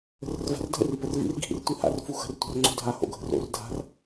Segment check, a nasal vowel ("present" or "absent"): absent